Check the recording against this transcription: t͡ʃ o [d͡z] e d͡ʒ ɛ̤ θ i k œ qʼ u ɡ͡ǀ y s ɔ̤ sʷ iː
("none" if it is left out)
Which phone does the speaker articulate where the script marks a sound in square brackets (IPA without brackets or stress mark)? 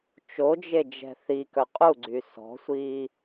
d͡ʒ